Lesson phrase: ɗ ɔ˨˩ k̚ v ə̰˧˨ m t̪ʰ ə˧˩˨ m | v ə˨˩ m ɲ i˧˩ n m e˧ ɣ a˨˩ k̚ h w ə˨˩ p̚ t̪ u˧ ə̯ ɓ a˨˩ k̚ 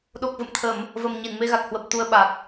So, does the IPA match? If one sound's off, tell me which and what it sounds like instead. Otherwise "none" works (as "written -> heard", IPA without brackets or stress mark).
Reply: ɔ˨˩ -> o˨˩